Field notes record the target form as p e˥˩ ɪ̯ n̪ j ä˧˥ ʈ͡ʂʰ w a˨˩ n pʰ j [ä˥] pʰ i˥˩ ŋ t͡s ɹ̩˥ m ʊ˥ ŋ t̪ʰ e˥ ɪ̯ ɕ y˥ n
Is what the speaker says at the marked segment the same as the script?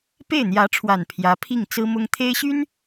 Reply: no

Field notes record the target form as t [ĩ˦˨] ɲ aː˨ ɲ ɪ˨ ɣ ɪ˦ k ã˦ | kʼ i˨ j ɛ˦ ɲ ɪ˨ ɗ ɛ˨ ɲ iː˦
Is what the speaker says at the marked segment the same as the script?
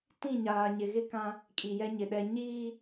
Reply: yes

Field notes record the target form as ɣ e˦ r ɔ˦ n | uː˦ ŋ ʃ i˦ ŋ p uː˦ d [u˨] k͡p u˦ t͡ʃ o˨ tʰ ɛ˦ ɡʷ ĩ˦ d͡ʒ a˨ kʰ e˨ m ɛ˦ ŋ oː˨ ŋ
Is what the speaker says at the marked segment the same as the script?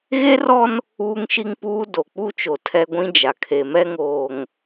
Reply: no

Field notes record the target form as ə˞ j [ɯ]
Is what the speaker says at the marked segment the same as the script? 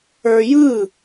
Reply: yes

